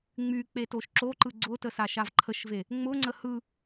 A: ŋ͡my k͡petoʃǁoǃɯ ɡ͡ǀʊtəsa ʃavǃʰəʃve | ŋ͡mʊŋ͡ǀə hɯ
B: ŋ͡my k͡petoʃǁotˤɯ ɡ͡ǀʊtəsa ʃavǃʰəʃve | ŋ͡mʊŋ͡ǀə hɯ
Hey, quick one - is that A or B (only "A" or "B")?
A